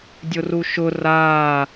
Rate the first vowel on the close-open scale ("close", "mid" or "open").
close